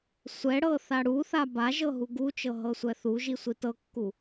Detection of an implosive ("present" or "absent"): absent